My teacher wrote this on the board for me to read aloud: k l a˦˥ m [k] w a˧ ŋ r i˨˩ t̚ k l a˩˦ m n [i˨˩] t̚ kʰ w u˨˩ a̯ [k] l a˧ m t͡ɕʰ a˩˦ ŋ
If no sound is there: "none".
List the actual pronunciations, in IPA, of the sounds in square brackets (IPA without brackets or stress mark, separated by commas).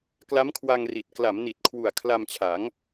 kʰ, i˨˩, kʰ